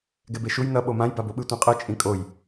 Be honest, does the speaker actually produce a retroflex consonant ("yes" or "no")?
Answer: no